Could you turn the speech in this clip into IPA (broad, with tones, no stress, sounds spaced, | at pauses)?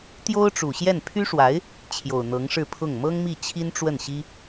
t̪ j o˥ ʊ̯ ʈ͡ʂ u˨˩ ɕ j ɛ˥˩ n pʰ y˥ ʂ w a˧˥ ɪ̯ | t͡ɕʰ j o˨˩ ʊ̯ n̪ ɤ˧˥ ŋ ʂ ɻ̩˥˧ pʰ ʊ˥˩ ŋ m ɤ˥ ŋ m i˥˩ t͡ɕʰ i˥ n ʈ͡ʂ w ə˥˩ n ɕ i˥